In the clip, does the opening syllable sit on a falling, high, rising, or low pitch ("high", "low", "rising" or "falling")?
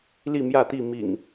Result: falling